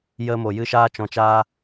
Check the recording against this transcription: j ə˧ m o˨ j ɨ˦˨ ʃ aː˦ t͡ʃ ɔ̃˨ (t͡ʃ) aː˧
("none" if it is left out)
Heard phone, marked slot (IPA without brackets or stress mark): t͡ʃ